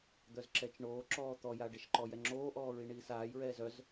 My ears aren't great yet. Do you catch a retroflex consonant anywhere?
yes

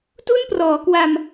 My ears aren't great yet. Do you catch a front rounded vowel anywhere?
no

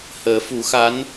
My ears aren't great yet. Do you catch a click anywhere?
no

